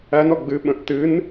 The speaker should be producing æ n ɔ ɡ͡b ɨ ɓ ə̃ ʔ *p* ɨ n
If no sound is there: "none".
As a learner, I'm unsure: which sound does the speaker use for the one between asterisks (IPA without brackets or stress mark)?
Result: t